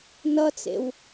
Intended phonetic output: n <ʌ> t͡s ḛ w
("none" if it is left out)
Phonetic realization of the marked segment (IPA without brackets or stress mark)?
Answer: ʌ